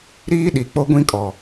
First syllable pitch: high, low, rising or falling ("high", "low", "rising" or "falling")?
high